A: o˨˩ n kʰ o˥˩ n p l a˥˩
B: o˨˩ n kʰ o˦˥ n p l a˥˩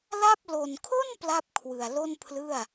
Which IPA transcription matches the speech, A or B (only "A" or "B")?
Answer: A